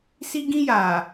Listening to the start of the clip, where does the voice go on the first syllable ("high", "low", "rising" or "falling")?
high